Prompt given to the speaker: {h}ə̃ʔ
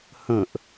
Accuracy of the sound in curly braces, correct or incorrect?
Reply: correct